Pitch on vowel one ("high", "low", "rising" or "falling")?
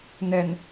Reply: low